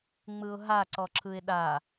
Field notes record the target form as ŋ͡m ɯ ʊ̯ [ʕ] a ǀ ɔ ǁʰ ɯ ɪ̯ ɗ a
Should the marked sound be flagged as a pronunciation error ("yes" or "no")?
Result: yes